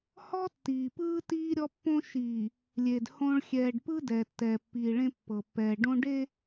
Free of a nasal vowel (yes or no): no